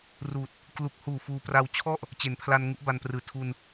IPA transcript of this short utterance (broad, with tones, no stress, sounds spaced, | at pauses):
r uː˨˩ t̚ | k l u˨˩ k̚ h uː˨˩ f uː˧ p r a˧ w t͡ɕʰ ɔ˥˩ ʔ | t͡ɕ e˩˦ n pʰ l a˧ n ŋ u˦˥ ʔ b a˧ n p r ɯː˨˩ tʰ u˧ n